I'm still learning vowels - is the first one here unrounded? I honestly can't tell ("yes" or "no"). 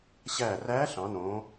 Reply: yes